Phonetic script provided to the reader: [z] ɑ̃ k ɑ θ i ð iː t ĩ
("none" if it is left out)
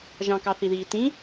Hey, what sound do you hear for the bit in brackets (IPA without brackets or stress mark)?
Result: ʒ